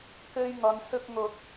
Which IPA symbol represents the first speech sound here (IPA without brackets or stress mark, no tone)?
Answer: k